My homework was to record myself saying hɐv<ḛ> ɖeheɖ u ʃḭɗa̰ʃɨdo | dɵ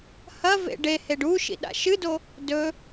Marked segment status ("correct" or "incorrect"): correct